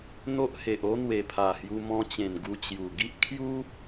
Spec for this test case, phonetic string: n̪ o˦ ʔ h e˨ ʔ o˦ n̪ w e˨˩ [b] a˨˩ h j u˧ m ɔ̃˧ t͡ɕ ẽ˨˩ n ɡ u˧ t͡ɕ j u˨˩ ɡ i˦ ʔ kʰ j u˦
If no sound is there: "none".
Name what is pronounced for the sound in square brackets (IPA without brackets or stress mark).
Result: pʰ